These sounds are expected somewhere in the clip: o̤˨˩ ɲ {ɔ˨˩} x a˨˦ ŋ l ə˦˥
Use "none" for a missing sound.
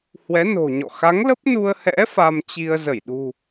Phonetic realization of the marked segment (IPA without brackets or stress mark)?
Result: ɔ̰˧˨